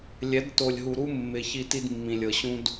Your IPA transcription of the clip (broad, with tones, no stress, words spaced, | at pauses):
lʲɛ˨˦d to˨lʲɦu˨ɾu˦ mːɪ˨ çi˦ti˦dmːĩ˨lʲ ɤ˨ɕũ˦d